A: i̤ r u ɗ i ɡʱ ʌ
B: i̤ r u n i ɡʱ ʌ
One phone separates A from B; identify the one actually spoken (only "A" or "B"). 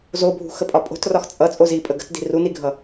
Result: B